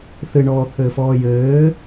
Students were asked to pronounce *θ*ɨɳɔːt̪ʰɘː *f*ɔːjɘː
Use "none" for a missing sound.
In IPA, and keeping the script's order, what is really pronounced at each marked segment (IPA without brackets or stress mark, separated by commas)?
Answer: θ, f